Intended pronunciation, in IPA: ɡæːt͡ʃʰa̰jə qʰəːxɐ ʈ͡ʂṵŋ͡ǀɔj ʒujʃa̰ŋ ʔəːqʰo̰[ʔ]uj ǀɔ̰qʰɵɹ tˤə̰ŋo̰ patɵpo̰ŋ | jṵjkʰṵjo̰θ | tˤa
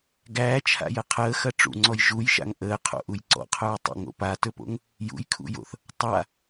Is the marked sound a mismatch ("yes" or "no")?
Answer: no